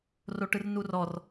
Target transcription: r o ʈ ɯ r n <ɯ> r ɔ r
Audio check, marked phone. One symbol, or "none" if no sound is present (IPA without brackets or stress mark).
u